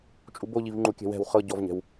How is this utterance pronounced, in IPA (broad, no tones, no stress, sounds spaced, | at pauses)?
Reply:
t͡ʃʼ u b o ʎ i v ŋ͡ǃ u kʲ ɛ̤ w ɛ̤ w χ ɤ ɟ ɔ v ɲ ɛ̤ w